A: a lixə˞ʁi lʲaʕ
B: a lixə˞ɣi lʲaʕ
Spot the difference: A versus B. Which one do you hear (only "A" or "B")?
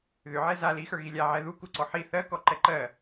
B